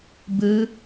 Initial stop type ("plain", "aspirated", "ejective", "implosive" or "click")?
plain